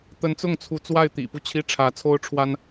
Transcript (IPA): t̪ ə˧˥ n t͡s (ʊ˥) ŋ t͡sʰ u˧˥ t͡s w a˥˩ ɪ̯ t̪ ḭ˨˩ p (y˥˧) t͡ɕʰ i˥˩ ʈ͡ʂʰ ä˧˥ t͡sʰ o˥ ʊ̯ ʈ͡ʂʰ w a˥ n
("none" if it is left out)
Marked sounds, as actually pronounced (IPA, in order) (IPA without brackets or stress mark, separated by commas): ʊ˥˩, u˥˧